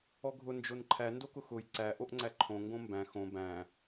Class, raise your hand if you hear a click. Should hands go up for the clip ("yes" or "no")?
yes